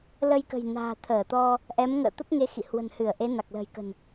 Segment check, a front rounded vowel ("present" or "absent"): absent